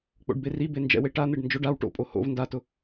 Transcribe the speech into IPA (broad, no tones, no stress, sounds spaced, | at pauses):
k͡p o̰ ɖ b e r i b e n d͡ʒ ɛ̰ w e ʈ a n̪ e ɖ n d͡ʒ ʊ ɖ a w ʈ o̰ pʼ o h o̰ v n d a t ʊ